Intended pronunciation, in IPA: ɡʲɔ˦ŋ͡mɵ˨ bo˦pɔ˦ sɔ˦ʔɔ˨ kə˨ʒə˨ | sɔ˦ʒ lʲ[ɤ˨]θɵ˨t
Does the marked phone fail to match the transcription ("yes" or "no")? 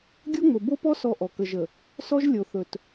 yes